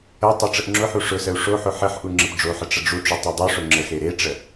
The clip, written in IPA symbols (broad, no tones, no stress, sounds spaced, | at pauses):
ə tˤ ʊ ʈ͡ʂ ə ʔ ŋ͡ǁ ʊ ħ u ʂ ʊ s ə u̯ ʂ o ħ ʊ ħ ə ħ ʔ u ŋ͡ǁ ə p ɖ͡ʐ o ħ ə ʈ͡ʂ ə ɖ͡ʐ u ʈ͡ʂ u tˤ u dˤ o ʂ ʊ ŋ͡ǁ ə x e ɾ e ʈ͡ʂ ə